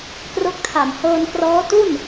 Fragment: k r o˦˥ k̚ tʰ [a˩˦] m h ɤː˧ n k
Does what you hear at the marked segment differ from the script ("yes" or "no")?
yes